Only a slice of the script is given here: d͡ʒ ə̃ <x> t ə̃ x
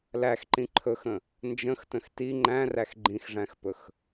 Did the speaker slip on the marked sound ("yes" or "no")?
no